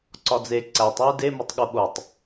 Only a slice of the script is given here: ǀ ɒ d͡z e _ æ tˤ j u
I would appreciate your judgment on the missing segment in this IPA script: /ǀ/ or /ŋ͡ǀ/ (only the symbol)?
ǀ